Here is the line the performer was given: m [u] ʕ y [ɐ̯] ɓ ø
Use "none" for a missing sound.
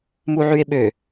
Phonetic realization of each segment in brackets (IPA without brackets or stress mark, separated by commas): u, e̯